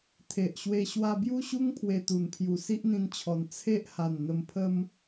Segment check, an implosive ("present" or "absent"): absent